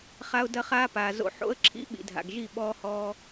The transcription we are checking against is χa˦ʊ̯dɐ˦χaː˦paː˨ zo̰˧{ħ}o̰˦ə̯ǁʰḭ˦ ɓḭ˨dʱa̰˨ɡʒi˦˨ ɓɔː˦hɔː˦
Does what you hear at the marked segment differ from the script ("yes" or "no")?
no